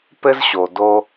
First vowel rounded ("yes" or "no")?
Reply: no